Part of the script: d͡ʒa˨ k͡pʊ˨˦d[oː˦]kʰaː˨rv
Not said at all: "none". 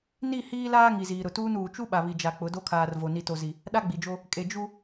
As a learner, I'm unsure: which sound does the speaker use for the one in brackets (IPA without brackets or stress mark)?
o˦